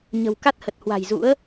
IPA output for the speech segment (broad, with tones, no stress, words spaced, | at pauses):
ɲə̤˨˩w ka˦˥t̚hə˨˩t̚ hwa̤˨˩jzṵ˧˥ə̯